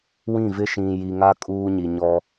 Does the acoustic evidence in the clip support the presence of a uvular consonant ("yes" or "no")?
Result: no